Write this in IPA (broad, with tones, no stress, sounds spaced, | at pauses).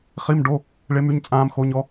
χ i˧˥˧ m ɖ o˧˥˧ | ɭ e˦˥ m y˧˥˧ ɲ t͡sʼ ãː˦˥ m x o˦˥ ɲ ɔ˦˥